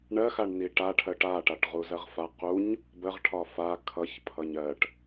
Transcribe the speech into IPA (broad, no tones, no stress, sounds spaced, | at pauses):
ɳ ɜ x a ɳ n i ʈ a ʈʰ ɜ ʈ a ʈ a ʈ ʁ u z ɜ ʁ f a q u ɲ | b ə ʁ ʈʰ ɒ f a kʰ ʌ ç pʰ ʌ ɲ ɜ ʈ